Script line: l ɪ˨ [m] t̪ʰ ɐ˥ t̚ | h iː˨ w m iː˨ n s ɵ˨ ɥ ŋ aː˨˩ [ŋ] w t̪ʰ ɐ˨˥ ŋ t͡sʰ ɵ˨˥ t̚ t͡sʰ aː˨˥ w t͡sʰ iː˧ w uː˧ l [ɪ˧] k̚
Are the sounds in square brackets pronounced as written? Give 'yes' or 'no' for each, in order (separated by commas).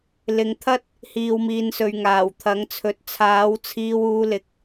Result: no, no, no